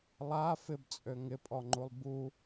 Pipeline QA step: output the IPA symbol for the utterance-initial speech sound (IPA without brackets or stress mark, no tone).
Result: lˠ